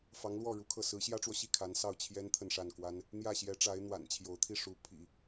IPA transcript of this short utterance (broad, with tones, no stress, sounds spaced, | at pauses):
f ɑ˧˥ ŋ l w ɔ˥˩ ɻ u˧˥ kʰ ɤ˥˩ s ɹ̩˧˥ ɕ j ä˥ ʈ͡ʂ w ɔ˨ ɕ i˥˩ kʰ a˧˥ n s ɑ˥˩ ʊ̯ t͡ɕʰ j ɛ˥ n t̪ʰ ə˥˧ n ʂ a˥˩ n k w a˥ n | n̪ j ä˥˩ ɕ j ɛ˧˥ ʈ͡ʂ a˧˥ ɪ̯ n̪ w a̰˨˩ n t͡ɕʰ j o˧˥ ʊ̯ t̪ʰ i˥˩ ʂ u˧˥ pʰ ḭ˨˩˦